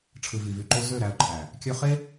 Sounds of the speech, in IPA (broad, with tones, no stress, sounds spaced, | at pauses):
ʈ͡ʂʰ ɯ˨ v i˨ v y˨ ǃ o˧ z ø˦˨ ɾ æ˧ ʊ̯ ǃʰ æ˨ | kʲ ø˧ χ e˦